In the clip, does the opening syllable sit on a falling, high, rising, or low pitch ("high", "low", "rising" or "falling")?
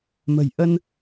low